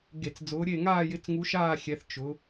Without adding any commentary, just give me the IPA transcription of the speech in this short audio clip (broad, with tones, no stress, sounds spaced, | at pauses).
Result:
ɡ e˧˩˧ t͡s d͡z ʊː˨˦ ɾʲ e˦˨ ŋ aː˦˨ j ɪ˨˦ t͡s ŋ u˨˦ ʃ aː˦˨ xʲ ɛ˨˦ θ t͡ʃ ʊ˨˦